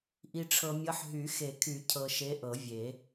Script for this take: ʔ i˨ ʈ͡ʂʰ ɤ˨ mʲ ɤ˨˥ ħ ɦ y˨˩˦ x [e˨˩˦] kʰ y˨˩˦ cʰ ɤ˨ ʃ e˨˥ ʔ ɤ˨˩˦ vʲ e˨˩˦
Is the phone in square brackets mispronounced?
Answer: no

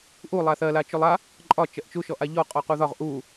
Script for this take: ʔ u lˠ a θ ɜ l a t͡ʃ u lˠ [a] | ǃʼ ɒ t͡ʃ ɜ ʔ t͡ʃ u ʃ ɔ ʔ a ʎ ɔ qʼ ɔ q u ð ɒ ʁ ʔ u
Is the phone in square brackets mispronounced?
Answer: no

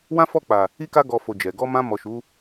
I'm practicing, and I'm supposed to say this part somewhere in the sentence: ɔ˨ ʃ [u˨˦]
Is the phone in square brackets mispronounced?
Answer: no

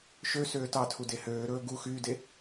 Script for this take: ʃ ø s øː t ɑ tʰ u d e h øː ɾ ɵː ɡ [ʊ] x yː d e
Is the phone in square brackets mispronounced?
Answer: yes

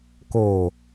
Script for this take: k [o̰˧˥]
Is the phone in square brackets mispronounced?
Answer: yes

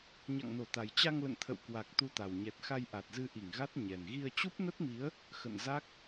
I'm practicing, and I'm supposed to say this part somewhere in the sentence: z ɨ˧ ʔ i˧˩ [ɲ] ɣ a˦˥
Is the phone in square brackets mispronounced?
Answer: yes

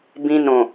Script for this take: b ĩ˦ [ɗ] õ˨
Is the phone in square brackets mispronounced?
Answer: yes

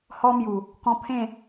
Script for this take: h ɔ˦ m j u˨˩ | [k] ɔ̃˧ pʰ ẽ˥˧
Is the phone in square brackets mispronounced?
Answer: no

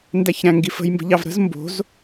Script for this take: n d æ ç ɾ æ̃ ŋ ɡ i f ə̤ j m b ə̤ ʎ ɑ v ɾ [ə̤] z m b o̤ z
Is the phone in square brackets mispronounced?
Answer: no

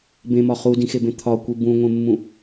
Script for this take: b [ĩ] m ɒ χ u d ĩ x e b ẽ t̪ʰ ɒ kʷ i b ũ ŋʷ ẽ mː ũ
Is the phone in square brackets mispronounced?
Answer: yes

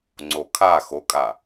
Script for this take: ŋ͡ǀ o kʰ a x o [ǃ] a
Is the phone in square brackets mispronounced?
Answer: yes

